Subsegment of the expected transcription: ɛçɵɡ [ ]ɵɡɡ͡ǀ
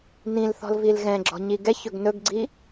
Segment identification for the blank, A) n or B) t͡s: A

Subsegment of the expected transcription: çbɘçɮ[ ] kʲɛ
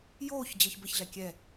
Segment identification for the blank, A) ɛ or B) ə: A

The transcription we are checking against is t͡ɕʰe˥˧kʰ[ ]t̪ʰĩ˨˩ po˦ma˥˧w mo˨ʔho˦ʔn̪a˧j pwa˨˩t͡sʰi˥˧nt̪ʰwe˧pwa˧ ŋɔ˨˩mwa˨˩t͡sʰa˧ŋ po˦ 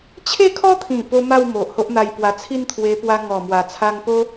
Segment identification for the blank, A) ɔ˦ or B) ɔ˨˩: A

